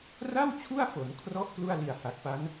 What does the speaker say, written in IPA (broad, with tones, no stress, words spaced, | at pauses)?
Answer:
ra˥˩w t͡ɕʰu˥˩a̯fo˩˦nkʰrɔ˦˥ʔ klu˥˩a̯li˨˩a̯ha˨˩k̚pa˦˥n